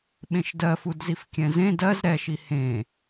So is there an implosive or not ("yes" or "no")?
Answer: yes